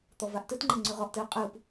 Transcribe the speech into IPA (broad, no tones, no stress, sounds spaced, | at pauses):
t̪ ɔ v a ʔ t ɘ t ŋ͡ǃ ɘ ŋ͡ǀ ʉ ʁ ɔ ʔ t ɘ ʊ̯ qʼ ɯ p